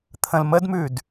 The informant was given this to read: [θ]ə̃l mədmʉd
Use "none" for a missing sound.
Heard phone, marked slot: t̪ʰ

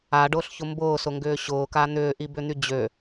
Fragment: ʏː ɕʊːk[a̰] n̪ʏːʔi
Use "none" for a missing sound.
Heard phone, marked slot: a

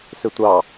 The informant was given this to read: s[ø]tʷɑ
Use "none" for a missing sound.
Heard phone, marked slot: ø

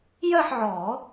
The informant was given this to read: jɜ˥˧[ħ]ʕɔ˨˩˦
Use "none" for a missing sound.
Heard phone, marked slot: ħ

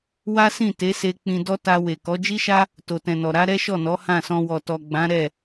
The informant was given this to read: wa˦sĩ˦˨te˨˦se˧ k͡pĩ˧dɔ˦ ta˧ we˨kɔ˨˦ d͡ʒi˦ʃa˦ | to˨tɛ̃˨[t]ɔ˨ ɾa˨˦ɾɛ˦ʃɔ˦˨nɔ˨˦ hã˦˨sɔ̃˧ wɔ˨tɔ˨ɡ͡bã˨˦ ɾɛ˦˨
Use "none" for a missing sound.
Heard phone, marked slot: n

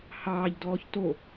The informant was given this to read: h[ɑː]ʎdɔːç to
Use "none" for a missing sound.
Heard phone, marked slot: ɑː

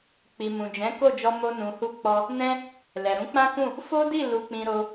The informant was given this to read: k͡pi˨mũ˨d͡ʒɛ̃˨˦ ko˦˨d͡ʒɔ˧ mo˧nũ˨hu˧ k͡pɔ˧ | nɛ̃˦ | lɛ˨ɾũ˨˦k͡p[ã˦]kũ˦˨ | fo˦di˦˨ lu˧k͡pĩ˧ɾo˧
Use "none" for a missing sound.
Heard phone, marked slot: ã˦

